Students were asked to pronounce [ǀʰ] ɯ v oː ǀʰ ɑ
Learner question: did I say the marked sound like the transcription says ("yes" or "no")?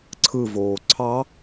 yes